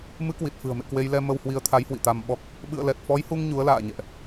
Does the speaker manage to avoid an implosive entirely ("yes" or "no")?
no